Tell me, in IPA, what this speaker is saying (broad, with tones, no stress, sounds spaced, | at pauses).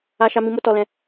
a˦ ʃ a˦ m ĩ˧ m o˦ t ɔ˧ l ɛ̃˧